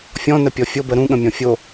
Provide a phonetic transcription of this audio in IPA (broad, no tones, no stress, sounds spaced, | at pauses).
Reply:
fʲ ɔ̃ n ə pʲ ɔ fʲ o b ə ɾ ũ ɠ ə̃ mʲ ɔ̃ fʲ o